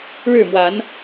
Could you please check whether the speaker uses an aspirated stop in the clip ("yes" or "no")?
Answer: no